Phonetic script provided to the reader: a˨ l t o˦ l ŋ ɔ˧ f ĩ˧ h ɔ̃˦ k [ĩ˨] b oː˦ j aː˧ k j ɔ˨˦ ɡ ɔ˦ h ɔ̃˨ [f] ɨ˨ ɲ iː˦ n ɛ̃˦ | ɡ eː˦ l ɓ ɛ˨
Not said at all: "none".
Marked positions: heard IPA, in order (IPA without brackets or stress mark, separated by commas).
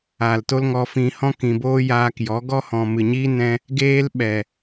ĩ˨, m